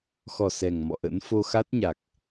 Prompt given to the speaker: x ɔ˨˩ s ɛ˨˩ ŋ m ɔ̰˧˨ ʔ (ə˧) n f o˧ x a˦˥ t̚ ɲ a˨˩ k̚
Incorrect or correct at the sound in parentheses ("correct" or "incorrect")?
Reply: incorrect